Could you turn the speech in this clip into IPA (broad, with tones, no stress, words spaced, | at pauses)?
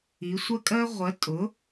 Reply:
i˩˧sʷɜ˦kʼɜ˦ʁʷɜ˩˥ tʼʊ˩˥